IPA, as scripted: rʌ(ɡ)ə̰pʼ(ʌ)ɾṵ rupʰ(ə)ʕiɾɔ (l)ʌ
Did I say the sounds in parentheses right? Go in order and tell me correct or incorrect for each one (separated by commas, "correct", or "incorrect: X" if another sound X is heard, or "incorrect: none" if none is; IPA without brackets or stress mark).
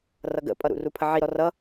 correct, correct, correct, incorrect: r